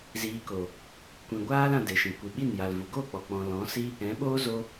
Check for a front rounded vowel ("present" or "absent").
absent